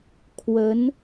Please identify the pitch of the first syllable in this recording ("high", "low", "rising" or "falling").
rising